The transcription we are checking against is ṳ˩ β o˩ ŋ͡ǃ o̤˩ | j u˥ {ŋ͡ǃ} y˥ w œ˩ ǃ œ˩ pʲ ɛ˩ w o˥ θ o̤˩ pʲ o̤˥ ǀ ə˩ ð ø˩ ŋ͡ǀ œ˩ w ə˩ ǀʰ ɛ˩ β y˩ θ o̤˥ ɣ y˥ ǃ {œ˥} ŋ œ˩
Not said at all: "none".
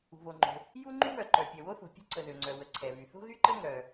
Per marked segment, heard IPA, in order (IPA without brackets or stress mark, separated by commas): ŋ͡ǃ, ə˥